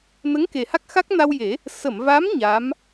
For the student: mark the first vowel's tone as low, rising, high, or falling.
rising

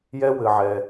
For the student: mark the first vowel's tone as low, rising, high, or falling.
high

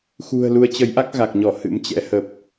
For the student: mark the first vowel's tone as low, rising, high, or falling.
low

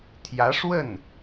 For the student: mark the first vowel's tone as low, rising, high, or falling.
rising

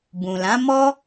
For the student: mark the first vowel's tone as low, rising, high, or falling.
low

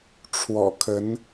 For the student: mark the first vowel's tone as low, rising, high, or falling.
low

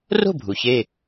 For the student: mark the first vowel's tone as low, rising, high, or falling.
falling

